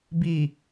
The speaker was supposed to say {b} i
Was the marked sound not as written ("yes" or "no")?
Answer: no